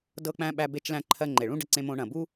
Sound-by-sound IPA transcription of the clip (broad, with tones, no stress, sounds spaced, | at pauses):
d ɤ˧ k͡p æ̃˧ ɓ æ˧ b e˧ t͡ʃ l æ̃˧ ǃʰ ɜ˧ ŋ͡ǃ e˩ ɭ ũ˥ ɖ ə˧ ǀ ẽ˧ m õ˧ ɳ ɐ̃˩ b u˥